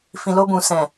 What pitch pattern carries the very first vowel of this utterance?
low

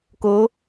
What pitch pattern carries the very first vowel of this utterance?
rising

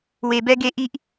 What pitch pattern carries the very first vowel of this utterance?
high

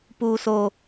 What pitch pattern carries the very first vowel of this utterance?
high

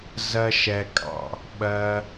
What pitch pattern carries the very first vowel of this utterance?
high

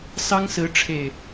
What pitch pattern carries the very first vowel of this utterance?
high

